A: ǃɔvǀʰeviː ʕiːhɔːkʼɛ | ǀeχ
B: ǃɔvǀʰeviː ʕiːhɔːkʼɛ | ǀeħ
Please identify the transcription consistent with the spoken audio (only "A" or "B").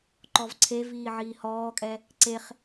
A